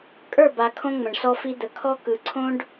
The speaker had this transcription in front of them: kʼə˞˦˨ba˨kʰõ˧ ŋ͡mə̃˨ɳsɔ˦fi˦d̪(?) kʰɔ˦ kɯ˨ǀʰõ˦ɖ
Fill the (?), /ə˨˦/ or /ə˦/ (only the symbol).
ə˨˦